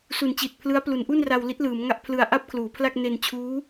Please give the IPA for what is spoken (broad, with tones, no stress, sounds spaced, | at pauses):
s u˨˩ n t͡ɕ i˨˩ t̚ pʰ l ɯ˦˥ a̯ p l u˩˦ n ʔ u˥˩ n r a˧ w l i˦˥ t̚ l ɯː˩˦ m ŋ a˥˩ ʔ pʰ l ɯ˧ a̯ ʔ a˥˩ p̚ kʰ l uː˩˦ pʰ l a˥˩ k̚ n e˧ n t͡ɕʰ uː˦˥